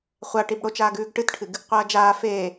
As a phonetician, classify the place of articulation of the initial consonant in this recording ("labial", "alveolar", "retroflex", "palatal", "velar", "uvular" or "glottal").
uvular